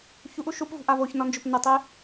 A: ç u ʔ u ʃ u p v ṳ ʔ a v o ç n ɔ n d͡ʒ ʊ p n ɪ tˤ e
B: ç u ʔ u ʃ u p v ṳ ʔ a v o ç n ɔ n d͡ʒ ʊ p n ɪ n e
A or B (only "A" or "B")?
A